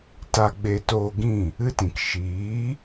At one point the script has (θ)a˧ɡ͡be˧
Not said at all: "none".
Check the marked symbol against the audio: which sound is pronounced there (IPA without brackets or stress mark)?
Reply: t